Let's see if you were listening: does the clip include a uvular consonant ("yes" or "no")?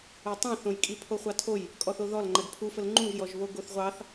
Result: yes